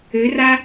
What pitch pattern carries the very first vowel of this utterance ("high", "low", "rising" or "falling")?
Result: rising